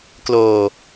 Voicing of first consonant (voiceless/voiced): voiceless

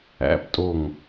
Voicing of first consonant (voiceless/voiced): voiceless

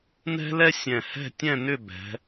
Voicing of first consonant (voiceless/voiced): voiced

